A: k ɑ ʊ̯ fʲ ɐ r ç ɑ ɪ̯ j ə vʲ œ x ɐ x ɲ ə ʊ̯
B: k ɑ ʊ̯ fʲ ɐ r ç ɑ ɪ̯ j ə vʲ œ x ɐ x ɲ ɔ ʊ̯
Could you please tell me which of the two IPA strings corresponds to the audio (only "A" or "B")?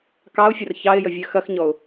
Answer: B